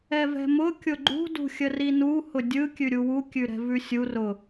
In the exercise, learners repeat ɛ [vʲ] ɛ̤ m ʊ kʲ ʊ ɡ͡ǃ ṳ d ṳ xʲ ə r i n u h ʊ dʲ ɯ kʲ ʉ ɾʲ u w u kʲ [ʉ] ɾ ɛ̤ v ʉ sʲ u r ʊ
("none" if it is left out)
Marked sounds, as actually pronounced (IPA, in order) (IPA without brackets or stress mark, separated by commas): v, ʉ